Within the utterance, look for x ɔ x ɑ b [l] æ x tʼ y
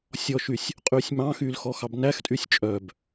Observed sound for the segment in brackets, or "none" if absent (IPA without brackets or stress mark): n